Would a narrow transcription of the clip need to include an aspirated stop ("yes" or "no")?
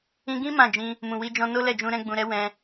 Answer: no